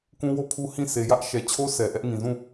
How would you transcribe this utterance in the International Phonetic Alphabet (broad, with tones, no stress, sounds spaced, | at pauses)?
k ũ˦ w o˦ pʰ u˦ h ĩ˦˨ s e˨ j ä˦ ʔ ʃ ɛ˨ t͡ɕʰ o˦ s ɛ˨ ʔ ɛ˦ ʔ ŋ ĩ˨ z ũ˦˨